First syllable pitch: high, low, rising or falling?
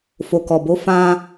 low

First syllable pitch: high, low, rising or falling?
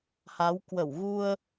rising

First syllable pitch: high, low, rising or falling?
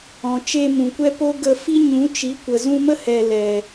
low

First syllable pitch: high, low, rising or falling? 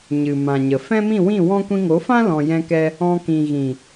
low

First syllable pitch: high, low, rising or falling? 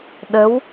rising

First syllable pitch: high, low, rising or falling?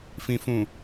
low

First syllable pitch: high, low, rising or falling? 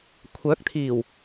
rising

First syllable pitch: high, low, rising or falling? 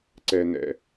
low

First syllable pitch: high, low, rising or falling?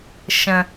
low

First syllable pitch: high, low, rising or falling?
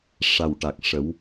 low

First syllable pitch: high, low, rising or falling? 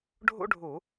high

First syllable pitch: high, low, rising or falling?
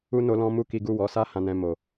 high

